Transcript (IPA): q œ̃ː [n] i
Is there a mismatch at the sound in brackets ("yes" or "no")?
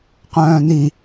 no